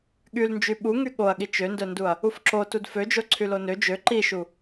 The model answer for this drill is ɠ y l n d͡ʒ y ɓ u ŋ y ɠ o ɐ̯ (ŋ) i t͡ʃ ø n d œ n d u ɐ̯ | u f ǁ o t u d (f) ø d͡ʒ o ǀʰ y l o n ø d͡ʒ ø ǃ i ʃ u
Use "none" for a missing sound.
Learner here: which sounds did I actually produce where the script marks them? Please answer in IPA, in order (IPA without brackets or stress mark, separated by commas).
ɠ, f